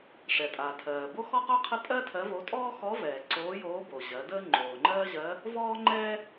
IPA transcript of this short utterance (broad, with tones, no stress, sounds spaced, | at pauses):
ʂ ɛ˩ tʼ aː˩ tʰ ɜː˩ b o˥ x ɔ˥ q o˥ qʰ ə˥ tʼ ɜ˥ tʰ ɜ˧˥ v o˧˥ tʼ ɔː˥ x ɔ˧˥ v ɛː˩ ǀ oː˧˥ j oː˧˥ b o˩ ʑ ɜ˩˧ d əː˥ ŋ͡ǃ oː˩ ŋ͡ǃ ɜː˥ ʑ ɜ˧˥ | v ɔː˥ ŋ͡ǃ ɛː˥